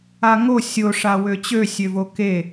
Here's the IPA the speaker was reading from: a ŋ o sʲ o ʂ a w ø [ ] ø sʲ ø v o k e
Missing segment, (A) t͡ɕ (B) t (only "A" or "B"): A